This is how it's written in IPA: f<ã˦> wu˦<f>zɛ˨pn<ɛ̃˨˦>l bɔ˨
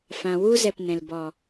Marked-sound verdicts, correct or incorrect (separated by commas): incorrect, incorrect, incorrect